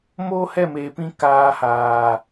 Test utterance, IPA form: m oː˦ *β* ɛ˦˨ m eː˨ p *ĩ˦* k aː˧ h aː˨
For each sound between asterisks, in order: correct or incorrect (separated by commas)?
incorrect, correct